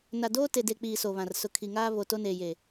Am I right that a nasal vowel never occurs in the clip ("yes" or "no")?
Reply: no